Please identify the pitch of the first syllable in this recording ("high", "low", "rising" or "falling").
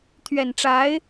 low